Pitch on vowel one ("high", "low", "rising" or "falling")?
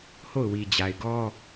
falling